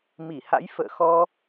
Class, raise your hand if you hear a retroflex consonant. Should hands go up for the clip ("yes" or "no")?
no